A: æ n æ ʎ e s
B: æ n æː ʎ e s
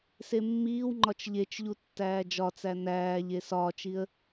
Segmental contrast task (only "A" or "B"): B